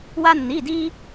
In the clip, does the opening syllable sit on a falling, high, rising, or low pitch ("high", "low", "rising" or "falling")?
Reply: high